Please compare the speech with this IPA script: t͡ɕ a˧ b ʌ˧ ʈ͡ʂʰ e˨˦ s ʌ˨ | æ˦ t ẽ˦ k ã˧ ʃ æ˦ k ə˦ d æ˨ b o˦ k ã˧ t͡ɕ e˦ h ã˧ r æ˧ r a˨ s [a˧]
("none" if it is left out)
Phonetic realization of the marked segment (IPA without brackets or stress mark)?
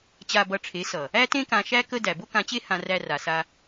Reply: a˧